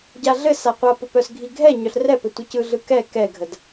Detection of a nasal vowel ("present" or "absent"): absent